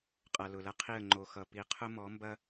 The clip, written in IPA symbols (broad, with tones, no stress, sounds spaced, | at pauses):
qʼ ʌ˨ l ʊ˨ l ɐ˦ qʰ i˦˨ ə̯ ŋ͡ǃ o˨ x ʌ˨ p i˨ qʰ ʊ˦ m ɔ˨˦ m b ɐ˦